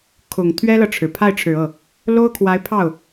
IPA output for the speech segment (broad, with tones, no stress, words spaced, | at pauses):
kʰʊ˨˩ŋ t̪ʰɥɛ˥lɤ˨ʈ͡ʂʰɻ̩˩ pʰa˥˩ɪ̯ʈ͡ʂʰɻ̩˨˩ɤ˥˩ | lo˥ʊ̯kʰwa˧˥ɪ̯pʰɑ˥˩ʊ̯